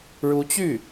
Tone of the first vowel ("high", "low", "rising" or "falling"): rising